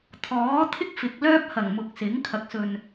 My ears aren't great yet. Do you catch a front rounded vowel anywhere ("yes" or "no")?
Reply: yes